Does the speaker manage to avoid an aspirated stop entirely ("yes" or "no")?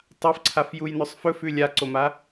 no